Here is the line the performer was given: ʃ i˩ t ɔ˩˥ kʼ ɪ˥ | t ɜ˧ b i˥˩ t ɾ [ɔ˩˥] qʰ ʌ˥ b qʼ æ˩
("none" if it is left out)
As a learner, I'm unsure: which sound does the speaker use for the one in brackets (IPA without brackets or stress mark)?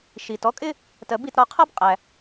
ɔ˧